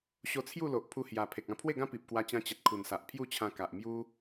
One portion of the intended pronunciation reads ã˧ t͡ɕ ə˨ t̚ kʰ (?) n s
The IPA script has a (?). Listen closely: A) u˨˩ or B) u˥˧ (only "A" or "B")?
A